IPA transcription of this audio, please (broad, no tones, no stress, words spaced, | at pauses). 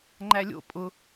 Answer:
ŋ͡ǃælʲo̰ pʼʊ